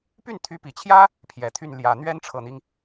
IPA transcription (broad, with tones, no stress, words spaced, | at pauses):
py˥˩nt̪ʰy˧˥pi˨˩t͡ɕʰjä˥ | pʰjɛ˨˩t̪ʰy˥˩n ljä˨˩ n̪ɥɛ˥nʈ͡ʂʰɤ˨˩n̪i˦ŋ